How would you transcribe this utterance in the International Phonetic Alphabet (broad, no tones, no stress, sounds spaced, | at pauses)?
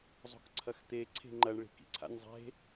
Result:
zˤ o̤ k ǀʰ ɐ x t̪ e ǀʰ e̤ ŋ͡ǃ ɐ ɳ ɭ i̤ k ḭ ǀʰ a̰ nʲ zˤ e̤